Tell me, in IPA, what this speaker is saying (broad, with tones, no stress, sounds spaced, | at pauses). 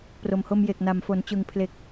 p r o˨˩ m h o˧ m j e˨˩ k̚ n a˨˩ m f o˩˦ n t͡ɕ ɯ˨˩ ŋ pʰ l e˨˩ k̚